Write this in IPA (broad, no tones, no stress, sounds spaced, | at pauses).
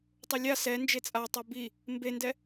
tˤ o lʲ a s ɛ n d͡ʒ e t͡sʼ a tˤ o b i | m b e n d ɛ